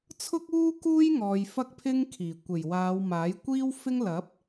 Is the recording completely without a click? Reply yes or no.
yes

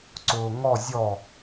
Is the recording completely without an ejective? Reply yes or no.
yes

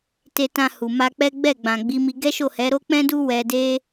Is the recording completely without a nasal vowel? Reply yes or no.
no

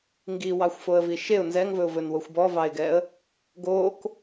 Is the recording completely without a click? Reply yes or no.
yes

